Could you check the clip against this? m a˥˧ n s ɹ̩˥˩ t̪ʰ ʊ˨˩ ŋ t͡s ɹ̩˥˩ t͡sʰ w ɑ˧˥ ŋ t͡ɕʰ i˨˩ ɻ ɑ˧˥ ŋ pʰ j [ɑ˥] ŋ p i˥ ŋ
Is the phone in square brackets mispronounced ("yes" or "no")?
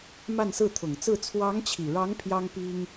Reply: no